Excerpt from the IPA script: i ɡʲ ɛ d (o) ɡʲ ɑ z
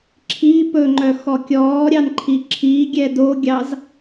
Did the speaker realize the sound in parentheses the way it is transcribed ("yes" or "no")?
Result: yes